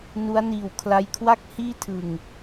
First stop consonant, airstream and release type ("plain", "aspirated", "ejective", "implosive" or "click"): aspirated